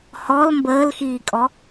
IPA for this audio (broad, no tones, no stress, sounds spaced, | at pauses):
h ɔ l m b əː l x iː kʼ ɔ